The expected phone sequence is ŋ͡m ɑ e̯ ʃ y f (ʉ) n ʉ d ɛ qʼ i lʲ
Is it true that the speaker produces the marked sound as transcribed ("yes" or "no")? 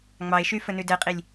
no